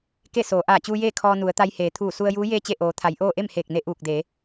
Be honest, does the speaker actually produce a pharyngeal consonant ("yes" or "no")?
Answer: no